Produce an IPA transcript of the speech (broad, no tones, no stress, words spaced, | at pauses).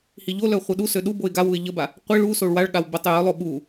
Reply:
hiʎolœ χʷœɗusø ɗu boɪ̯ɡawuɪ̯ ʎəba | qʷi ɭusoɭ waɭɠaw bətˤ jœlˠo ɓu